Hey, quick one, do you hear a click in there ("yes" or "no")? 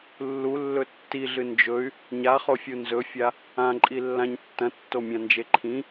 yes